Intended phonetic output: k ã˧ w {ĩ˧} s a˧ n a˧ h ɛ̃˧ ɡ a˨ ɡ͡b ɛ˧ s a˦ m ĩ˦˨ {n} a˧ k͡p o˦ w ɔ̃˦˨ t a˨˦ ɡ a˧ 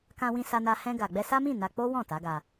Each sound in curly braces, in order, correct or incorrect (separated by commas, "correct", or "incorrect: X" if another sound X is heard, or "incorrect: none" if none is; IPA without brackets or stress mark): correct, correct